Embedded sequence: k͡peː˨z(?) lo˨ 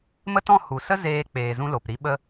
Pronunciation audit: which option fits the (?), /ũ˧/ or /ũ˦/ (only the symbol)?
ũ˧